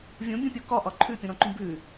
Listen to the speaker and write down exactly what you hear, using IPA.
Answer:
vʲũbʲũpʲu kɒʔɒ ǃʰʉpʲũɾɔ̃ǃũ bʉ

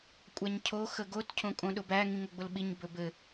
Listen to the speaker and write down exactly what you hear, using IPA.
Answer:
kʷʼæɲcʰo xəɡot cʰõkʼõɗʊbæ ŋĩŋɵɡ͡bʊlɓiɲ bɵbɘ

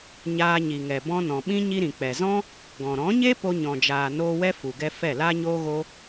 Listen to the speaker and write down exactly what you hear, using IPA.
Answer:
ɲaː˧ɲi˨ŋɛ˨ bɔ̃˧nɔ̃˨ɓĩ˦ ɲi˧ɾĩ˨k͡pɛ˨zɔ̃˦ | ɡɔ̃˨ ɾɔ̃˨˦ɲe˦ po˧ɲɔ̃˨d͡ʒaː˨ noː˧wɛ˦ fu˨ɡɛ˧fɛ˦˨ laː˧ɲoː˧ɣo˧

